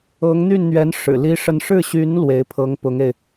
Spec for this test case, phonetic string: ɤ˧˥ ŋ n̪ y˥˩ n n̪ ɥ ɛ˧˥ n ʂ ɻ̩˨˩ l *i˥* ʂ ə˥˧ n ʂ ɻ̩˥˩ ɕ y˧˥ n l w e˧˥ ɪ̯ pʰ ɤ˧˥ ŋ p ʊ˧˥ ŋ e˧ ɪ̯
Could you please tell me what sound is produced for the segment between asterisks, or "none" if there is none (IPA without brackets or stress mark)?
i˥